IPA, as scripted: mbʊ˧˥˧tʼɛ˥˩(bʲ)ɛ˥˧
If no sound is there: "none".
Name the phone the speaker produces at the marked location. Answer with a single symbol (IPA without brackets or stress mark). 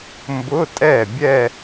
bʲ